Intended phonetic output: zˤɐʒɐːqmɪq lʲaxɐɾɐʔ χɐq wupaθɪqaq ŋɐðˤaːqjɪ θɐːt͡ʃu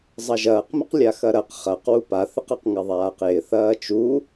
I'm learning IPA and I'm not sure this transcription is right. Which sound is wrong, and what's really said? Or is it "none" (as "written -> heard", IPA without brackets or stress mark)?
ʔ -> q